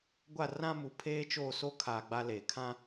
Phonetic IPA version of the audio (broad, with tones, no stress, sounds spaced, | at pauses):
ɡʷ a˦˨ r ã˦ m u˨ pʰ eː˦ t͡ʃ oː˦˨ s o˦ kʰ aː˨ ɡ͡b a˦ l eː˨ kʰ ã˦